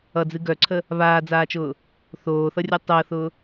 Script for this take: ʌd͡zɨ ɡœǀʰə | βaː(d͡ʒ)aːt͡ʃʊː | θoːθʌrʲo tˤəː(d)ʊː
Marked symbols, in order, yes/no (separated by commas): no, no